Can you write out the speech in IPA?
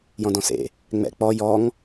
j ɔ̃ d ɔ̃ s ḛ | ŋ͡m ɛ̰ k͡p ɔ j ɔ ŋ

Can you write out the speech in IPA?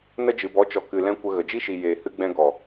n ə˧ d͡ʒ ɨ˨ b ɔ˨˦ t͡ʃ ɔ˨ k ɨ˨ l ɛ̃˦ kʷ ə˧ ɣ ə˨ d͡ʒ i˦ ʃ i˨ j eː˨ h ɨ˧ ɡ͡b ɛ̃˧ ɡ ɔ˨

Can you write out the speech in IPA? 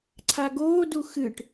ǀʰ a ɡ oː d u x ɨ ʈ

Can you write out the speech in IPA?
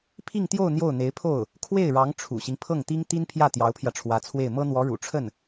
pʰ i˥˧ ŋ t̪ j o˥˧ ʊ̯ n̪ j o˥˩ ʊ̯ n̪ e˧˥ ɪ̯ pʰ o˥˩ ʊ̯ | kʰ w e˥˩ ɪ̯ ɻ ɑ˧˥ ŋ ʈ͡ʂʰ ṵ˨˩ ɕ i˦ ŋ pʰ ɤ˥˩ ŋ t̪ i˥ ŋ t̪ i˥ n pʰ j ä˥˩ t̪ j ɑ˧˥ ʊ̯ pʰ j ä˧ ʈ͡ʂʰ w ä˧˥ t͡sʰ w e˥˩ ɪ̯ m ɤ˥ n̪ w ɔ˧˥ ɻ ṵ˨˩ ʈ͡ʂʰ ə˥˩ n

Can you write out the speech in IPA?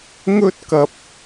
ŋ ɵ˥ t̚ k ɐ˧ p̚

